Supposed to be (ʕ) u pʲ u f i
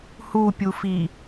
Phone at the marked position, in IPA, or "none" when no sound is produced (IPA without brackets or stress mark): h